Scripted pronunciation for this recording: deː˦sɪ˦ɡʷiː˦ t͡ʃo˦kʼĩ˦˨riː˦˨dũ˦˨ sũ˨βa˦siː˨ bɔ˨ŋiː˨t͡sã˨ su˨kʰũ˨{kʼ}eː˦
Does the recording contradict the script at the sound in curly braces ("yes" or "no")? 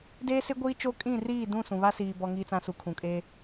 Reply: no